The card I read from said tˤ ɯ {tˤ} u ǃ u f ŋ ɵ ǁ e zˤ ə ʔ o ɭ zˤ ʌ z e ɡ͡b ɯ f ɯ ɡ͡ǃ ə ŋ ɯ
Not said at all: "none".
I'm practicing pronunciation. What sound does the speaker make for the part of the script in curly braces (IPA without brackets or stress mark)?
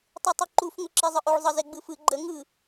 tˤ